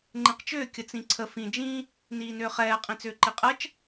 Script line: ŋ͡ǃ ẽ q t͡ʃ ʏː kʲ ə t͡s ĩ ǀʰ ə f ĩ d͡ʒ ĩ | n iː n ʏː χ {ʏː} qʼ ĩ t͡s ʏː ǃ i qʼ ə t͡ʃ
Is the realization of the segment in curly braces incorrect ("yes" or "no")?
yes